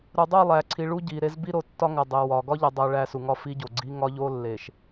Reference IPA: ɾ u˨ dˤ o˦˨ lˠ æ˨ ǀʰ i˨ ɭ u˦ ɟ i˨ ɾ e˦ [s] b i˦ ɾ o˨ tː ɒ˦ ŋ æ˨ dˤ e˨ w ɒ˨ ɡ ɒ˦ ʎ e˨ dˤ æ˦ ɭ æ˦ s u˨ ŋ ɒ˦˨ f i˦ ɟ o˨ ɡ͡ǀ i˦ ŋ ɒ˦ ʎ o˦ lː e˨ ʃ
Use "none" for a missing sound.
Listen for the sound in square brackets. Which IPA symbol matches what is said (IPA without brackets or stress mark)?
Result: z